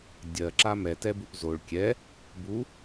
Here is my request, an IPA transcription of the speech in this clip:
dʲɜ ǁamɛ tɛbuʔzoɭ kʲɛ | bu

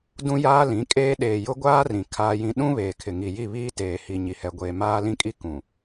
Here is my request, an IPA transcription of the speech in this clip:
dũ˦jaː˦lĩ˨˦kʼeː˦ ɗeː˨ jʊ˦ɡʷaː˦rĩ˨ kʰaː˦jĩ˦ ɗũ˦βeː˨kʰɪ˨ŋi˨ ji˦˨βiː˦teː˨ hi˨ ɲi˨hɛ˨ɡʷeː˨ maː˦lĩ˦kʼi˦ kũ˨

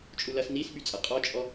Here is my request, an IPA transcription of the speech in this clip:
t͡ʃʼulɐs nisɓyt͡sʼɐ qʼɔt͡ʃʼɔ

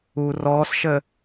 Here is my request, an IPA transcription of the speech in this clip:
u rɔːsʃə

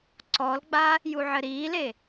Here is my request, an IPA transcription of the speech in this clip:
ǀɔlɡ͡ba | juʕɘɾiːle

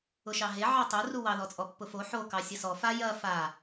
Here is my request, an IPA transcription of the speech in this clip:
ʊʃɑɦe ʕɑtˤʊ ruwɑ ðɔt͡sʼɔpːʊfo ħo kɑsʲɐsɔ fa jɐ fa

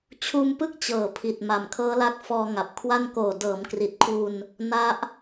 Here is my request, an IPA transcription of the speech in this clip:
t͡ɕʰuː˧mpɯ˥˩k̚ t͡ɕɤː˨˩pʰi˨˩t̚ ma˨˩mkʰɤː˦˥la˦˥k̚ fɔː˧ŋa˨˩p̚kʰwa˥˩n koː˨˩ dɤː˩˦mkri˨˩t̚kʰwu˧n | na˦˥ʔ

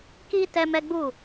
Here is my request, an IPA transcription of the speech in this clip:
ki˦ tɛ˦ mɛ˦ ɡ͡bu˦˨

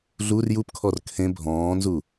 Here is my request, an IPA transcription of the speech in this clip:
ɮur jupkʰɔr kʰẽ bʱɔ̃ːnzu

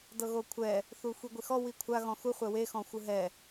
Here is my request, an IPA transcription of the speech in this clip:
dɤɣokʷʰɛ | θuxʷiɡʷixɔ wikʷʰa ɣɔ̃xu χʷɛwe xɔ̃xʷɯɦɛ

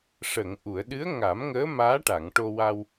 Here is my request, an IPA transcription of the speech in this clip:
ʂə˨˩˨ŋ ʔu˨˩˨ə̯ɗɨ˧˥ə̯ ŋa˨˩˦mŋəː˧˥ maː˧˥ʈa˨˩˨ŋʈo˧wa˧w

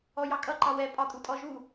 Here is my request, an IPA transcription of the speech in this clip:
ɔjɑkʼʌ ǃɑwɛ pʼɒtʼutʼɔʒu

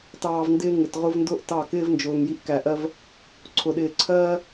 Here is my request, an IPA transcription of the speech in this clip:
tɑː˨v ndɪː˦ ŋɪ˨tʁʊ˦vndʊ˦ʔ tɑ˦˨kɪː˦vnd͡ʒʊː˨ŋji˦ʔ kæ˨ʔɜ˦v | ǀʰʊ˨ɗɪː˨ǀʰɜː˦

